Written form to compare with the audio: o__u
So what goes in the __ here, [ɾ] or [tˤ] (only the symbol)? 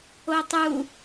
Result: tˤ